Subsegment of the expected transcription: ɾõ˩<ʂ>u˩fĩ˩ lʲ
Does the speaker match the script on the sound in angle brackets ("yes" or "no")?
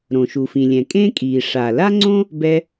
no